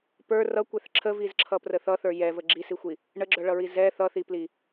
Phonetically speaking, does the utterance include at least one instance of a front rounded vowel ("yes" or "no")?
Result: yes